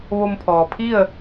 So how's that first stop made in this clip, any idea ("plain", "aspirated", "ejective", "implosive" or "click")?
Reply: aspirated